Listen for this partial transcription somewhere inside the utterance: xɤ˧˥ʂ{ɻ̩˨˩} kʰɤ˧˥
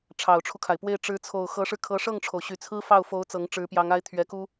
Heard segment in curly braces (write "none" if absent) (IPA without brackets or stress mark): ɻ̩˧